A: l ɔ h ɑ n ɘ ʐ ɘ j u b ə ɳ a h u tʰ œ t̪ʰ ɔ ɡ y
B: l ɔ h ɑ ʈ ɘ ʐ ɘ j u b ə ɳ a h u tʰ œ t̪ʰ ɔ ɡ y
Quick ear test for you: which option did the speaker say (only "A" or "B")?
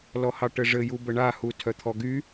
B